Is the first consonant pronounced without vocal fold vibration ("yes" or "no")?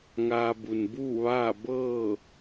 no